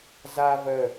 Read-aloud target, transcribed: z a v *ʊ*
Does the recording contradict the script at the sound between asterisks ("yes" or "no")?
yes